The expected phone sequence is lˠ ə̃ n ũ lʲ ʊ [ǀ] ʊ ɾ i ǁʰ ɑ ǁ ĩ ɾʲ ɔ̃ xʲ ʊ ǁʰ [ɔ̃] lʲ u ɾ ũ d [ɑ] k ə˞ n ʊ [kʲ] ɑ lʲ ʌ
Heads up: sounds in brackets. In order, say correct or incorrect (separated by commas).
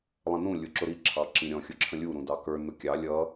incorrect, incorrect, correct, correct